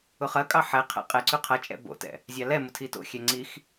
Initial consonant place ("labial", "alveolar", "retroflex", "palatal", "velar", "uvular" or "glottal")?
uvular